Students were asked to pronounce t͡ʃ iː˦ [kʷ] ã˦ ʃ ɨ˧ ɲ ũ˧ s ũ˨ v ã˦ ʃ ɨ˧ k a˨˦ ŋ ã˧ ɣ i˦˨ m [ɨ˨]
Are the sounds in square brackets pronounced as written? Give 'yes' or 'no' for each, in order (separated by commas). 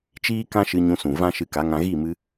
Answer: no, no